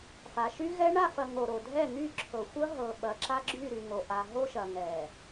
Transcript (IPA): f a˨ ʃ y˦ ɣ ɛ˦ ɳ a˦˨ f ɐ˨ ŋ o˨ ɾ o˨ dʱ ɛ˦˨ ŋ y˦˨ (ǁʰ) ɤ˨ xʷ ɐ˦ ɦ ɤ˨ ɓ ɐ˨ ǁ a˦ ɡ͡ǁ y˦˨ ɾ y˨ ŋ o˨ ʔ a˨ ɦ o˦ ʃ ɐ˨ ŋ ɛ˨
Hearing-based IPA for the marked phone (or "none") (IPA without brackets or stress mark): ǁʰ